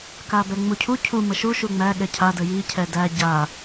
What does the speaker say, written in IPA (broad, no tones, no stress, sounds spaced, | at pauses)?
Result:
k a b ɛ ŋ͡m u cʰ u cʰ u m ə ʃ u ʃ u ŋ͡m æ ɠ ɛ cʰ a d ə j i cʰ ɛ d æ ɟ a